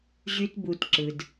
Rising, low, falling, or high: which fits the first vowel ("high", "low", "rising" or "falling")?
high